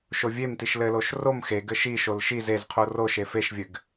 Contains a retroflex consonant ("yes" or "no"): no